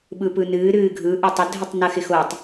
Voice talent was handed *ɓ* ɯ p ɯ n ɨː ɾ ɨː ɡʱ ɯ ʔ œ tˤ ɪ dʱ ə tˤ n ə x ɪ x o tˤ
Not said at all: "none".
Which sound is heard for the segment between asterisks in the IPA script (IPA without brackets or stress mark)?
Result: ɓ